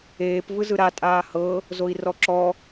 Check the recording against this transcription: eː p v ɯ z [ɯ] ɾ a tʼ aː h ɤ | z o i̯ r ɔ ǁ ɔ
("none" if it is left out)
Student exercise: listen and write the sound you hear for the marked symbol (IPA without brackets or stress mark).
ɯ